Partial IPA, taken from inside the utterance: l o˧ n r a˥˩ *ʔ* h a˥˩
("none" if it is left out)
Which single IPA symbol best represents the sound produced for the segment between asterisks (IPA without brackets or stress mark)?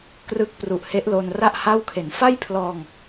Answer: ʔ